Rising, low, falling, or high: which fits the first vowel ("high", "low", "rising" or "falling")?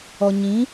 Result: low